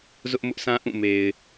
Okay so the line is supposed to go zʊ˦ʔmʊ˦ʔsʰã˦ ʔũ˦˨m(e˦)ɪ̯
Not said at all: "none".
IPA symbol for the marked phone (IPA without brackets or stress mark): e˨